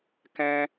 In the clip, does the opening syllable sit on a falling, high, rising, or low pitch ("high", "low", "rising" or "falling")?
high